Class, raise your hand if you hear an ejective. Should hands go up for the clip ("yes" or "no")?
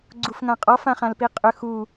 yes